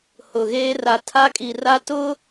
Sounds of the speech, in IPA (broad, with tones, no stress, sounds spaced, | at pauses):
h ʊ˨ ɣ eː˦ r a˨ tʰ a˦ kʼ i˨ r a˦ t ʊ˦